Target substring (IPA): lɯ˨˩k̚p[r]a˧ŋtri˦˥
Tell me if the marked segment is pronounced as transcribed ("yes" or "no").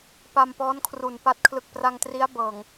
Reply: yes